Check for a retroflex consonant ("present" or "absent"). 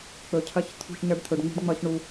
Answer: present